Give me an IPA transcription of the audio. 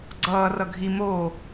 ɡ͡ǀ ʌː r ʌ ɡʱ i m oː

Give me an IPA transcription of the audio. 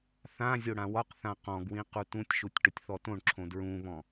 θ ã zʲ o ɽ ã w ɒ q θ ã q ɔ̃ ɡ w ĩ q u t ũ tʲ ʃ u tʲ ʈ ʊ tʲ θ ɔ t õ ɳ ǁʰ õ d ɹ ũ β ɔ̃

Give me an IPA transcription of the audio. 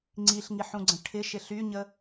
ŋ͡ǀ i ɬ ŋ i ħ ũ ɡ͡ǀ ə̃ ʈʰ ɪ ʃ ɪ ɬ y ɲ ə

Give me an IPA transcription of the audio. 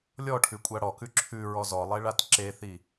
lʲ ɔ ʈʰ ʉ kʷʼ a ɽ ɔ k ʉ ǁʰ ʉ ɹ ɔ z ɔ lˠ e ɭ a t ǁ e θ i

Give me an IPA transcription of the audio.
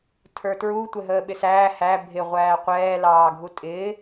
tʰ ə˞ t ɹ u tʷ ɛ ɦ əː ɓ ɪ s æː h æ bʱ ɪ ʁʷ æː qʷ ɛː l ɑː ɡʱ u tʼ ɪː

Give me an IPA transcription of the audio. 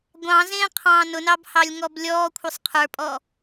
ɡʷ ɑ̃ z ẽː qʰ ɑ̃ː n ʊ n ɑ b h ɑ lʲ ŋ ɔ b lʲ ɔː kʷʰ ə sˤ qʰ ə˞ pʼ ɔ

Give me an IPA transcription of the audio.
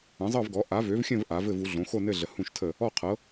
ə̃˩˥ zˤ ɤ˥˨ v ɡ ɔ˩˥ ʔ a˩˥ v ø˩˥ v xʲ ə̃˥˨ v ʔ a˩˥ v ɘ˥˨ v u˩˥ ɮ õ˩˥ x o˥˨ n ɘ˥˨ ɮ ə˩˥ h ũ˥˨ ʃ tʰ ə˥˨ | ɔ˥˨ qʰ ɤ˩˥

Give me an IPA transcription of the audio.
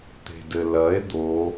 t̪ e̤ d ɘ l ɐ e̯ d̪ o

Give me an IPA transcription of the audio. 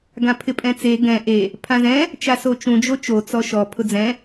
ɡ ã pʰ ɪ pʼ ɛ̃ t͡s e ɡ ɛ̃ ʔ e | pʰ ã z ɛ̃ | t͡ʃ a s o t͡ʃ ũ d͡ʒ o t͡ʃ o t͡s ɔ ʃ ɔ pʰ ʊ d͡z ɛ̃

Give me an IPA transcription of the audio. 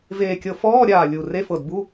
v eː˧˩ kʲ ɤ˧˩ f ɔː˧˥˧ ɾʲ aː˧˩ lʲ u˧˩ r e˧˥˧ f ɤ˧˩ d b u˧˥˧

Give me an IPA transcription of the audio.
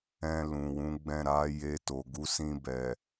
ɛ̃˧ l ũ˨ w ũ˨˦ ɡ͡b ɛ̃˦˨ ɾ a˨˦ j e˧ t o˨ ɡ u˨˦ s ĩ˧ b ɛ˨

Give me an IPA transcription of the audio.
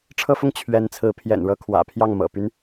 ʈ͡ʂʰ ɤ˥ f ʊ˥˩ ŋ t͡ɕʰ ɥ ɛ˧˥ n t͡sʰ ɹ̩˧˥ pʰ j ɛ̰˨˩ n ɻ ɤ˥ kʰ w ä̰˨˩ pʰ j ɑ˥˩ ŋ m ɤ̰˨˩ p y˧˥ n

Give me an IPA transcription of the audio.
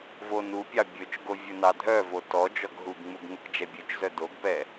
v o n u pʲ ɑ bʲ ɵ t͡ʃ ɡ o vʲ ɵ n ɑ dʱ œ v o t ɔ d͡ʒ ɔ ɡ ɦ u ɡ ŋ͡m u ɡ ŋ ɵ k d͡ʒ ɛ bʲ ʉ t͡ʃ z œ d o ɡ p ɛ

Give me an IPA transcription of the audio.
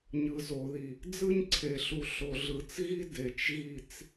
ɲ ɯ˨ z o˨ ð i˨ | d͡z ɯ˦ ɲ ǀʰ e˨ ɬ u˨ ɬ o˨ ɮ ɯ˨ t͡s ɣ i˦ d e˨ t͡ʃ ɣ i˦˨ t͡s

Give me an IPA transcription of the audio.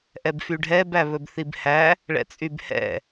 ʔ ɛ b f y ɖʱ ɛ b æ β ɵ b θ i b h æ | ɭ ɛ̰ t͡sʼ y b h ɛ̰

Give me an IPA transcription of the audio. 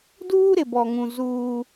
d uː˦ ɾ ɪ˨ b ɔ˨ ŋ ũ˨ z uː˦

